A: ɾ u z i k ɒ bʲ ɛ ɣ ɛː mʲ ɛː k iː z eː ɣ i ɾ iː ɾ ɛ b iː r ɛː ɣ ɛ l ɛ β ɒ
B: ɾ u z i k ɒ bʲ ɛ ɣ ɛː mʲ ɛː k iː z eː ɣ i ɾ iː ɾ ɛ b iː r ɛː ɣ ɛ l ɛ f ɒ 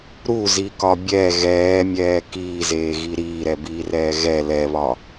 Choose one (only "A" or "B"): A